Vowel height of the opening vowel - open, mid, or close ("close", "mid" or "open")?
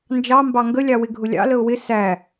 open